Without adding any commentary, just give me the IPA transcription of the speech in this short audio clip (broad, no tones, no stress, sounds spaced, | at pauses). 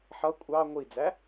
ħ ʌ kʷʼ ɑ ŋʷ i d͡z æ